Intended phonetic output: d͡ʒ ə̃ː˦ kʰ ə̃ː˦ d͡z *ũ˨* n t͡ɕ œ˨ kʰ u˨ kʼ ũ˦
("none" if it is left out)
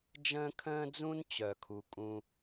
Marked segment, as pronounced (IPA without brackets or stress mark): ũ˦